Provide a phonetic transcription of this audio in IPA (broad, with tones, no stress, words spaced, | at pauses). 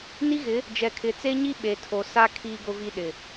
ni˦ɣɪ˨˦ | d͡ʒɛ˨kʰɪ˨t͡se˦ɲi˦ ɓe˨ tʰo˨sa˦ kʰiː˦ɡʊ˦vi˦ɗɪ˨